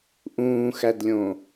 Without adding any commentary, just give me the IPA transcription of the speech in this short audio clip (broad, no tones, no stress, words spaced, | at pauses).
ʔũːxædlʲõ